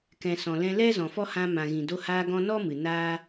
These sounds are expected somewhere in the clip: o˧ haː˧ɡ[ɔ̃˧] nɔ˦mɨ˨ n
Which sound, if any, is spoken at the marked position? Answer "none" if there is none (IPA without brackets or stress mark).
ɔ̃˧